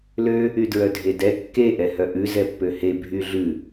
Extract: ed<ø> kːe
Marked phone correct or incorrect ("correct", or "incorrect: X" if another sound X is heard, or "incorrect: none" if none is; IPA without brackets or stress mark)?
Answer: incorrect: ɛ